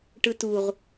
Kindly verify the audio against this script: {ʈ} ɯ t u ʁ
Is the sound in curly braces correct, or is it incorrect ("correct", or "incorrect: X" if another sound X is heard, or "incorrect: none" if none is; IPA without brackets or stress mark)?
correct